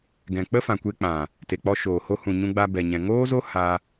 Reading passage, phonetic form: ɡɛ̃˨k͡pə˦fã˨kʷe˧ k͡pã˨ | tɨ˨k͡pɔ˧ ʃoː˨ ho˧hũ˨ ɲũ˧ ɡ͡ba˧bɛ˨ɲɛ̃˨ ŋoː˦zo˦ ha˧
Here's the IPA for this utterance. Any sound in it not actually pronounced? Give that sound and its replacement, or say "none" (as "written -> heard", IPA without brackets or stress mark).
ɨ˨ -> e˨